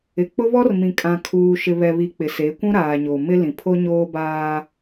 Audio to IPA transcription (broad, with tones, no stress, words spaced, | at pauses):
ɪ˨k͡pʊ˦βɔ˦r mĩ˨kʼã˨kʰuː˨ʃɪ˨ βɛ˨βi˨ k͡pɪ˨se˨˦kʷũ˦ɾaː˨ ɲo˨mɪ˦lĩ˨ pʰo˦ɲoː˦baː˦